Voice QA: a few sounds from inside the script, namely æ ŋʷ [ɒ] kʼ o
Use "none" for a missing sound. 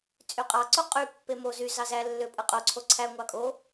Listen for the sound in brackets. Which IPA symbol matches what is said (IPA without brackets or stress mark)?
ɑ